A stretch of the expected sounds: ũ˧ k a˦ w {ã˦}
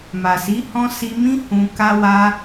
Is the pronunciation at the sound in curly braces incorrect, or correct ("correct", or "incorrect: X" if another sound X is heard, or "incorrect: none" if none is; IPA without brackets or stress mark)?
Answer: incorrect: a˦